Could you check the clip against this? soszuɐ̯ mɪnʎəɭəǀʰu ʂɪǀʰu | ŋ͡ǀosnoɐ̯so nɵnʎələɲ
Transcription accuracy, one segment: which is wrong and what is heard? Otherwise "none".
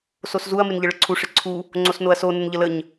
ɵ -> ə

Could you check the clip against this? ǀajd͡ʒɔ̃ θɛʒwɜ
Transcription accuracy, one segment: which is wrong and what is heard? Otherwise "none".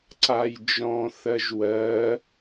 ɛ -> ɜ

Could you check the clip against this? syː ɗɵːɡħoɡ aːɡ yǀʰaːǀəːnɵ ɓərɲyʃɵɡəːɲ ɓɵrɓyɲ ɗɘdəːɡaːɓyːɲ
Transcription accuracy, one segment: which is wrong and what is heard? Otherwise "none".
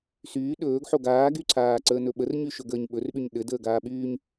none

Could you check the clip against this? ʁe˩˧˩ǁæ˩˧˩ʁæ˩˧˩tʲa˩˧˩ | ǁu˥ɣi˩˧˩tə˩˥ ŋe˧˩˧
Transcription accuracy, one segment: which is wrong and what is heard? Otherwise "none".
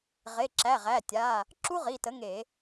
ɣ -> ʁ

